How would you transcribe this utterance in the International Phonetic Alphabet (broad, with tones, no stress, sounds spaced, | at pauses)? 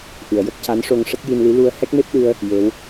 ʔ ɨ˨˩˨ ə̯ j ə˦˥ k̚ c a˧˥ n ʂ o˧ ŋ ʂ ə˦˥ k̚ j i˧ n l i˧˥ l u˧ ə̯ h ɛ˦˥ k̚ m e˦˥ p̚ ɗ ɨ˧ ə̯ | j e˧˥ w